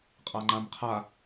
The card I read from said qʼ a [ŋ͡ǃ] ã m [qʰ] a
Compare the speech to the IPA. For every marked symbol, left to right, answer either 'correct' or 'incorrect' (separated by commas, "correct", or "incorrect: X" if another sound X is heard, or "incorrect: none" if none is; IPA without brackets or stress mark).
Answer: correct, correct